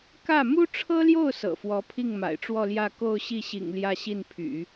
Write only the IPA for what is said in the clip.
kä˥˩ mu˥ʈ͡ʂʰɤ˥ljo˥˩ʊ̯ sɤ̰˨˩fwɔ˧˥ pʰi˥˩ŋma̰˨˩ɪ̯ʈ͡ʂwɔ˥˧ljä˥˧ ko˥˧ʊ̯ ɕi˥˩ɕḭ˨˩ŋ ljä˥˧ɕi˥˩npʰy̰˨˩˦

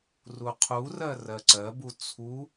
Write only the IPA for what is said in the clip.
ruqʰurɜ rɜǀɜbu t͡sʰu

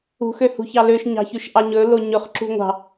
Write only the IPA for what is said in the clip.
ṳxøhṳçɑ løʃɲɑ̤çʉʃʔɑ ɲɵlo ɲɵχǁṳ ŋʷɑ̤

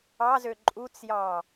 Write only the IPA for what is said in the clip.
ɑzø ǃʼut͡sjɑ

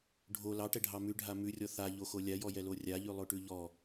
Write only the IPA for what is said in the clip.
ɖʱo lɑʈɛɖʱɑ mʉɖʱa mʉrʲɔ θaʎoxo lʲajɔjɛlo rʲaʎʉlˠoʈʉ ʎɔ

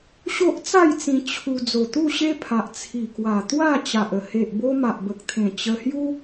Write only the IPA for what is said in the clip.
ɕo˦ʔt͡sa˥˧jt͡sĩ˧ t͡ɕʰu˧ d͡zo˨˩t̪u˥˧ɕe˦pʰa˨ʔ t͡sʰi˨˩kwa˨˩t̪wa˥˧ t͡ɕa˨ʔə˨˩ he˨ʔbo˧ ma˨ʔbə˨k̚t̪ʰẽ˨˩ t͡ɕə˧ hju˦

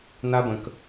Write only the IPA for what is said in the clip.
n̪a˦bə̃˨k

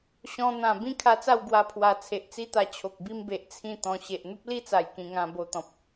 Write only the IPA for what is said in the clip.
ɕɔ̃˧ n̪ã˨˩ bĩ˦kʰa˧t͡sa˥˧w ɡwa˧pʰwa˨˩ t͡sʰe˨ʔt͡si˦t̪a˧ t͡ɕʰo˨k̚bi˦mbe˨ʔ t͡sʰĩ˥˧t̪ɔ̃˧ ɕe˨ʔn̪u˦p̚li˦t͡sa˨˩j kĩ˧ŋã˧ bo˧t̪ɔ̃˨p̚

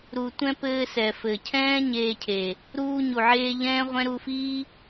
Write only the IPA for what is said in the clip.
ɾu˨tʷɛ̃˧ pɘː˧sɛ˨fɘ˨cʰɛ̃ː˦ ɲeː˧cʰe˨ | ɾuː˧ɲu˨ʕeː˧ ʎɛ̃ː˦ʁʷɛ̃˦ ɾu˧fiː˦

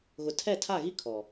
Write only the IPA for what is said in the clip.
ɣʊ˨tʰɛ˦˨tʰa˦˨ɣi˦ kʰɔ˨

